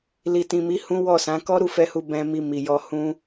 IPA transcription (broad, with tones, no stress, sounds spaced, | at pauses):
l i˨ t ĩ˨ m i˨˦ h ũ˦ w ɔ˦˨ s ã˨˦ k ɔ˦ ɾ u˦˨ f ɛ˧ h u˧ b ɛ̃˧ m i˧ m i˨ j ɔ˧ h ũ˦